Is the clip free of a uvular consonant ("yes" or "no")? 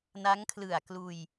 yes